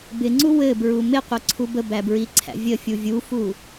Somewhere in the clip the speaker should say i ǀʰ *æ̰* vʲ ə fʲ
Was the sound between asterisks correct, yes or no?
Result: yes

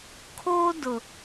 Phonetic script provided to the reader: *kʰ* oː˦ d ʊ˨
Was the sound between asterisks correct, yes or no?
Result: yes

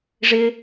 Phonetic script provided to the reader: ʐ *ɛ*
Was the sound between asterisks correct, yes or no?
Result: no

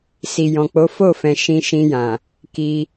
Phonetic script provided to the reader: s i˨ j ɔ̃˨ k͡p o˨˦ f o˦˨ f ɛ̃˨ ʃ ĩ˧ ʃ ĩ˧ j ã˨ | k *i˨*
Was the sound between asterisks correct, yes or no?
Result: no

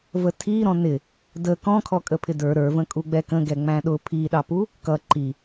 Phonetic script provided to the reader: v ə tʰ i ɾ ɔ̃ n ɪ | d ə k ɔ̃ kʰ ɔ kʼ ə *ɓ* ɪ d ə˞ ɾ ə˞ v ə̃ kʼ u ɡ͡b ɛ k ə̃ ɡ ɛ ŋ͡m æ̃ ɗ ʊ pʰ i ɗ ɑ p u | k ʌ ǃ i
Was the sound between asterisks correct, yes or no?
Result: no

